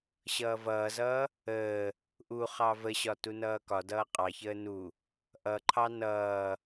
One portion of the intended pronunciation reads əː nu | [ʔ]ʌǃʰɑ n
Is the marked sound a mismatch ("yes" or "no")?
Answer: no